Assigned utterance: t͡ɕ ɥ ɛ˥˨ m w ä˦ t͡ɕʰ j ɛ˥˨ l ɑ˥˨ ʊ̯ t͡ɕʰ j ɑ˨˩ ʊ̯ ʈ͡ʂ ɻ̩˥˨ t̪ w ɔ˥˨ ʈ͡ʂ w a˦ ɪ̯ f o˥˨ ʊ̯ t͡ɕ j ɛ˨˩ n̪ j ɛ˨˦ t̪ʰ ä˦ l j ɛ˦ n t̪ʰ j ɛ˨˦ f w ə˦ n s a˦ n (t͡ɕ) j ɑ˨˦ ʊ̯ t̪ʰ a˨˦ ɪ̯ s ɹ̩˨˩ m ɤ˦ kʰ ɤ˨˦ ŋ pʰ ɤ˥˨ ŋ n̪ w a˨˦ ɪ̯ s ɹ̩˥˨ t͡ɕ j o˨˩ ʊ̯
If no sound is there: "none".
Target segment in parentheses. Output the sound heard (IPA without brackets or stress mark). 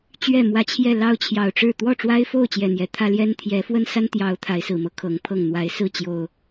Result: t̪